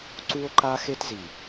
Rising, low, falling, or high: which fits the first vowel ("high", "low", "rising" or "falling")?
high